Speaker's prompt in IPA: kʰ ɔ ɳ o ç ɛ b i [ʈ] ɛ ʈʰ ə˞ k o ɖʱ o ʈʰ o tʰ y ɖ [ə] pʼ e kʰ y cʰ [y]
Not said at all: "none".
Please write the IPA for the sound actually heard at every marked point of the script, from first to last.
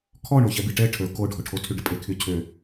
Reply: ʈ, ə, ø

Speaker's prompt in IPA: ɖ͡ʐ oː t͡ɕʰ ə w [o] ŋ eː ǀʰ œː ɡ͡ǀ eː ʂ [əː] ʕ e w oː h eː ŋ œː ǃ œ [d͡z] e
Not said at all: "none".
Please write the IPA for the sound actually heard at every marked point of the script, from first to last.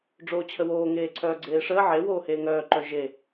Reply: oː, əː, ʒ

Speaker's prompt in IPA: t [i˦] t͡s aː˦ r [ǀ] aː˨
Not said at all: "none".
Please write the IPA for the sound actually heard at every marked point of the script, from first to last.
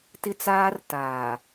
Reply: ɪ˦, t

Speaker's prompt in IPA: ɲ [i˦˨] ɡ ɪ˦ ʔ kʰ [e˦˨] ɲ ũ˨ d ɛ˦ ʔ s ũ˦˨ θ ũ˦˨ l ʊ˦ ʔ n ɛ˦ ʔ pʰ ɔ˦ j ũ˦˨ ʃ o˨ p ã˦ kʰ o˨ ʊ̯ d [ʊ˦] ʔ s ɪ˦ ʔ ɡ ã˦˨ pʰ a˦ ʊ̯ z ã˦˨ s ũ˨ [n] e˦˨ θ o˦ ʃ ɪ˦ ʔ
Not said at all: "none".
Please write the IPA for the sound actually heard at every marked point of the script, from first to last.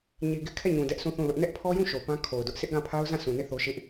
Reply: i˨, ɛ˦˨, ʊ˦, n

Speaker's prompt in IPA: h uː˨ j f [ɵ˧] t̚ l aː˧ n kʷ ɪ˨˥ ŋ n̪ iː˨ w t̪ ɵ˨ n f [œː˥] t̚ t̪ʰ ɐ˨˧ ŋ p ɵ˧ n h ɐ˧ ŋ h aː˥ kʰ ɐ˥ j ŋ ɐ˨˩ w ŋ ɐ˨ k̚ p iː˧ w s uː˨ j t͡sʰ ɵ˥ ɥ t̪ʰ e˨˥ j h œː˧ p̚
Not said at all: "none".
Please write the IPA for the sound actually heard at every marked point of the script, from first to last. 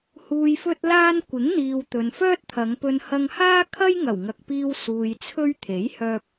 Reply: ɵ˧, œː˥

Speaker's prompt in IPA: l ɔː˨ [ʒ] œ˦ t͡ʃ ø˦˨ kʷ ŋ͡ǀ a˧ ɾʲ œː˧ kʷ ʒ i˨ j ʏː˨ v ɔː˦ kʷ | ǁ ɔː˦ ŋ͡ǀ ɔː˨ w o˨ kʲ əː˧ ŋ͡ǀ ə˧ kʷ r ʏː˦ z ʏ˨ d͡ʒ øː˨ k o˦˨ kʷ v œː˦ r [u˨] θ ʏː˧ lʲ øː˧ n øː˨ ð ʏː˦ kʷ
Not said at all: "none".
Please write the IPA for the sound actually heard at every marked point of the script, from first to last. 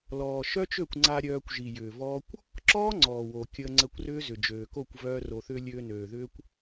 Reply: ʃ, o˨

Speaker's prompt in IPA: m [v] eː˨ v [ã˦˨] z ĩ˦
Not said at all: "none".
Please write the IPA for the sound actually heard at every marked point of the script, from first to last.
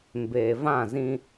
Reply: b, ã˦˨

